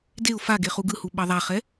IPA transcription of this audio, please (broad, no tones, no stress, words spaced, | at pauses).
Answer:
deʊ̯ faɡe χuɡɯhu ɓʌðˤaχɛ